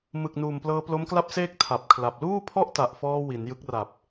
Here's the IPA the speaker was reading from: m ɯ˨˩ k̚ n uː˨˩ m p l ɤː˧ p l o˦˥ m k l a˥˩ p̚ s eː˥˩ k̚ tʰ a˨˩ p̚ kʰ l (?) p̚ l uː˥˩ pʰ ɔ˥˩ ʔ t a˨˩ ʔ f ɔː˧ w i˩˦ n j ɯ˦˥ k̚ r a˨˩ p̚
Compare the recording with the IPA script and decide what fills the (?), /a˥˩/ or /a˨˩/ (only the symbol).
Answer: a˨˩